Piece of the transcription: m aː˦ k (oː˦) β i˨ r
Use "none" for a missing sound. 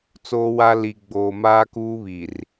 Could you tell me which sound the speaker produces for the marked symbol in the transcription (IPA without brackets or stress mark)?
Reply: uː˦